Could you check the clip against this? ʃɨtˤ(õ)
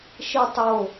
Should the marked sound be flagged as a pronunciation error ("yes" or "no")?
yes